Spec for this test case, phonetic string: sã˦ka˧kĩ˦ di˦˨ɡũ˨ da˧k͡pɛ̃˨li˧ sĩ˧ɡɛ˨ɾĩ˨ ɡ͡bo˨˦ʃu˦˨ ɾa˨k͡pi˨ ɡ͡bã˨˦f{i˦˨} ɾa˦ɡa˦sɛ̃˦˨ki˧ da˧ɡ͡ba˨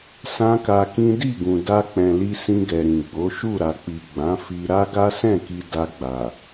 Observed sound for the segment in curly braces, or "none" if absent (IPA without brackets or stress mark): i˧